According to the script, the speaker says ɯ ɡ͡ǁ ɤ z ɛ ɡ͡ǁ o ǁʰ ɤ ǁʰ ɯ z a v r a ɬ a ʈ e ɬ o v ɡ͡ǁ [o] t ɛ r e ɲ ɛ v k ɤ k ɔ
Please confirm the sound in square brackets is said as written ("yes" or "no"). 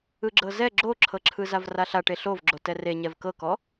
yes